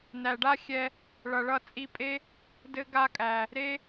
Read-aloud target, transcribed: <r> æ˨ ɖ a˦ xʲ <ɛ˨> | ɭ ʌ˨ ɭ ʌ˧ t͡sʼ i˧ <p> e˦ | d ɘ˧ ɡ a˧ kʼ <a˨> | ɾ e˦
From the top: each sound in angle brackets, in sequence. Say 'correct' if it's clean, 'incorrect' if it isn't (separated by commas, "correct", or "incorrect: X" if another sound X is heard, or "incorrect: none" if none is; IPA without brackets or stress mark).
incorrect: n, incorrect: ɛ˧, incorrect: pʼ, incorrect: æ˨